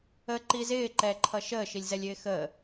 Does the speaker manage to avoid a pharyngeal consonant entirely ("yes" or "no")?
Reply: yes